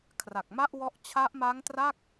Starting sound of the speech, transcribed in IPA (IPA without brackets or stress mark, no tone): kʰ